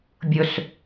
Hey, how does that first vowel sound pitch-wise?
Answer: low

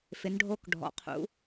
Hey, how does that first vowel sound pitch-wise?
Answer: rising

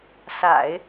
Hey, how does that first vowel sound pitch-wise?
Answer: low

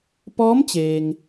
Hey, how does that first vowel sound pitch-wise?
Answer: rising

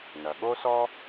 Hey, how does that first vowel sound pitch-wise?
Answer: low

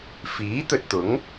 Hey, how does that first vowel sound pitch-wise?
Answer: rising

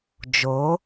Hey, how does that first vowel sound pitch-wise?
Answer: rising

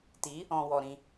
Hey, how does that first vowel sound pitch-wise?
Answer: rising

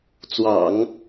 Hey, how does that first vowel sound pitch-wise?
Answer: low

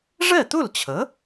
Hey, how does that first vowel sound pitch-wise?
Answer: falling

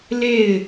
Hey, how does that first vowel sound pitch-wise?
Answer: falling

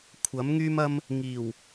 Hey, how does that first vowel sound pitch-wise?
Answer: rising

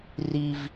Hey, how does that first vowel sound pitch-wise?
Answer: high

